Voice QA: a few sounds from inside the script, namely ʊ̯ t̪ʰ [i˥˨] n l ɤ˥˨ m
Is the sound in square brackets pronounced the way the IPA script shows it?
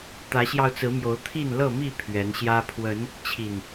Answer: yes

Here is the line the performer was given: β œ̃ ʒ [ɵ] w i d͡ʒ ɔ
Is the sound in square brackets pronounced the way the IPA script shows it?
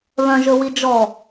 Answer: yes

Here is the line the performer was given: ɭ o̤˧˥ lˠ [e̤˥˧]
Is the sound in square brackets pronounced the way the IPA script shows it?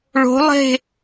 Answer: yes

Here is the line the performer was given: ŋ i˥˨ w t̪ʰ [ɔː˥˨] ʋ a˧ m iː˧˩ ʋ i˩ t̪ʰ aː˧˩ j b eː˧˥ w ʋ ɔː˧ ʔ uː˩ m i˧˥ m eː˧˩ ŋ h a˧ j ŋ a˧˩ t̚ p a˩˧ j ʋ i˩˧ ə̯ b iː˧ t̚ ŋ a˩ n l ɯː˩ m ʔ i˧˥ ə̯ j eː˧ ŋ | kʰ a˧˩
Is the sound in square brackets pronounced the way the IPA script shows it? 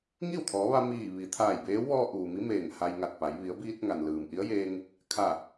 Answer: no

